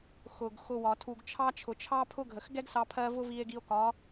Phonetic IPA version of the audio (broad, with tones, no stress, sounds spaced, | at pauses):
x ʊ˨ ɡ x ʊ˧ w ɒ˨ tʰ u˨ ɡ t͡ʃʰ ɑ˦ t͡ʃʰ ʊ˨ t͡ʃʰ ɑ˦ pʰ ʊ˦ ɡʱ ə˨ x ɡ ɛ˦ ɡ s ɑ˧ pʰ ɜ˧ v ʊ˦ v i˧ e̯ ɡ i˧ o̯ k ɒ˨˦